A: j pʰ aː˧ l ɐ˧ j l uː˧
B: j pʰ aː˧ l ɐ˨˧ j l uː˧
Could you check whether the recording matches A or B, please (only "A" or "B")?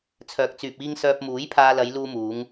B